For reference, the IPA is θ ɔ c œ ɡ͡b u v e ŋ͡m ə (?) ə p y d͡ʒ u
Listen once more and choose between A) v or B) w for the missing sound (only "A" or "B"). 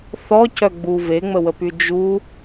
B